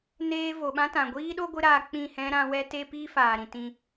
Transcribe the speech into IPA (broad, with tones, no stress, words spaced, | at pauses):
neː˦ vo˨ɓã˦tã˨ ɡʷiː˦ɗo˦ ɡʷɨ˦ɾaː˧ k͡pĩ˦˨hɛ̃˦ ɾã˧wɛ˦te˦piː˦ faː˨ɾĩ˨ tĩ˧